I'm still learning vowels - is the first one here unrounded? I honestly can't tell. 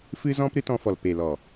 yes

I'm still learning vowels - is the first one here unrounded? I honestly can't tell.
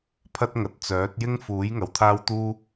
yes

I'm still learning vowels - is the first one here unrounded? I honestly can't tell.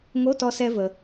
no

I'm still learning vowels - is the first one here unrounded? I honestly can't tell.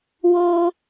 no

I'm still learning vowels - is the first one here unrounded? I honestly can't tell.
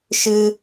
yes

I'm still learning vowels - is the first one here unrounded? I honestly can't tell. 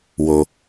no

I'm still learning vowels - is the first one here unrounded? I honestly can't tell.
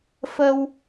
yes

